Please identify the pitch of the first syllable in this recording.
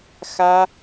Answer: high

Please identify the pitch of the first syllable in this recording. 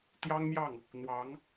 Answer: high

